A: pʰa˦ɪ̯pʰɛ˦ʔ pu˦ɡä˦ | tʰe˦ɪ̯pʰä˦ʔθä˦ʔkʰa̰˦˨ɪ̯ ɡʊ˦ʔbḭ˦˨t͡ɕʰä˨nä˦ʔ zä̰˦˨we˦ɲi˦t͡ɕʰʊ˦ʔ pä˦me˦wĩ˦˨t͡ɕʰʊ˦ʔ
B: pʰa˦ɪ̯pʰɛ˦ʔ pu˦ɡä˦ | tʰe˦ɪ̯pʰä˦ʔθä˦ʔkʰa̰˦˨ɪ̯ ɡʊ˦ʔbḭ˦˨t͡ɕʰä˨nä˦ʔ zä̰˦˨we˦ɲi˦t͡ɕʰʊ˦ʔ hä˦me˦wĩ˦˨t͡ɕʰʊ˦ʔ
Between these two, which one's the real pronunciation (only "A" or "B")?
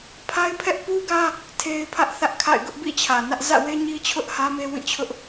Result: B